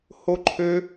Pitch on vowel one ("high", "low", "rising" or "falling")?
high